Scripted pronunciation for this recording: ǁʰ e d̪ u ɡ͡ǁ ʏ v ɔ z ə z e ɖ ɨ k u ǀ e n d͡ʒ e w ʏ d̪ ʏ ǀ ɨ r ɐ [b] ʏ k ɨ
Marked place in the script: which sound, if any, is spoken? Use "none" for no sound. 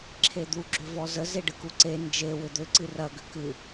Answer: ɡ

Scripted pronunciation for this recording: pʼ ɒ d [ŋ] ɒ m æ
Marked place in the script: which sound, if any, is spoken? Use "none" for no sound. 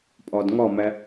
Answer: ŋ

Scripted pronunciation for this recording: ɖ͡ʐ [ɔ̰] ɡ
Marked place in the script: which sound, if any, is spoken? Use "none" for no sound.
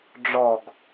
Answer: ɔ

